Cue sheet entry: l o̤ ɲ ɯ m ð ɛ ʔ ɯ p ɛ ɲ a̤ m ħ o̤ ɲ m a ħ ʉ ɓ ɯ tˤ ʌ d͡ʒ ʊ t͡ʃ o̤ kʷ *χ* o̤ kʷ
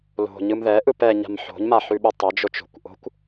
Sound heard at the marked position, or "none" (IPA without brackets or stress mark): ʔ